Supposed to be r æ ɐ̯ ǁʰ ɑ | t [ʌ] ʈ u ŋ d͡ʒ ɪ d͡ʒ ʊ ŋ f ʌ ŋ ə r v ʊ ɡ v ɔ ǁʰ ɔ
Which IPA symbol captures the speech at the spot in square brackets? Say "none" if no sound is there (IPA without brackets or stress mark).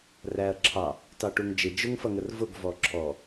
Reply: ɑ